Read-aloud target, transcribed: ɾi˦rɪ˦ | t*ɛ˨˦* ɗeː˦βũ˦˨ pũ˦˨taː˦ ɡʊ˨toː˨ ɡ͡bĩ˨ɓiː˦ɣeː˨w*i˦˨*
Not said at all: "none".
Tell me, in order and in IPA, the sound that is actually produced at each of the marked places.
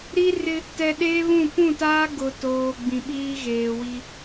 ɛ˨, i˦

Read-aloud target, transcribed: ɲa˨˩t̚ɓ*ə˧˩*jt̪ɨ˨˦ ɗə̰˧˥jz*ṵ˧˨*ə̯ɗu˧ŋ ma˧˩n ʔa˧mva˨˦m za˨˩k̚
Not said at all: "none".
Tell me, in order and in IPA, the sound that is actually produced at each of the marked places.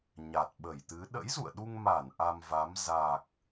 ə˧˩, ṵ˧˨

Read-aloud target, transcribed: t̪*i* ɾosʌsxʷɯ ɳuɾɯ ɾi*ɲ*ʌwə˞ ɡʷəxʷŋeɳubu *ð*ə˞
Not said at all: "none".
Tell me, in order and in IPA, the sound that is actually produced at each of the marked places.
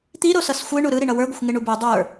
i, ɳ, dˤ

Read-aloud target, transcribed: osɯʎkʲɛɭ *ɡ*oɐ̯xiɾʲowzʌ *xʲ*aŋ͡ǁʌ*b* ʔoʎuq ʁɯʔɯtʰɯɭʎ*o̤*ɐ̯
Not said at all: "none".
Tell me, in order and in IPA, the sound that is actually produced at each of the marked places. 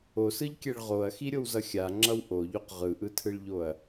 ʁ, xʲ, w, o

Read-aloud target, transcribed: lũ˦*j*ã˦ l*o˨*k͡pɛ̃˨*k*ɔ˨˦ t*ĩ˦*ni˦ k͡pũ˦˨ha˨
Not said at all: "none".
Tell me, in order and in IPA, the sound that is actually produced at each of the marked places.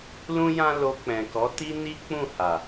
j, o˧, k, i˦

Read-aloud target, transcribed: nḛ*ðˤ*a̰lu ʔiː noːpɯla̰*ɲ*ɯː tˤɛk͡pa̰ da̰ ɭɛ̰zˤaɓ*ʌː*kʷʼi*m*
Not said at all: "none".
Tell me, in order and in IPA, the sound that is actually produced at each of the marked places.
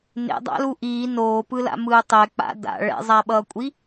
dˤ, m, ʌː, none

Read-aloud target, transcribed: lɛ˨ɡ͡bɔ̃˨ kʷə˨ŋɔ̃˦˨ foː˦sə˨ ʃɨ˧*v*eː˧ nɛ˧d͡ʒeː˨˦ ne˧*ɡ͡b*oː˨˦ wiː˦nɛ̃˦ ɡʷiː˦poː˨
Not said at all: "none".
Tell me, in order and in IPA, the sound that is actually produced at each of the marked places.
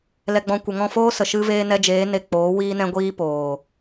v, k͡p

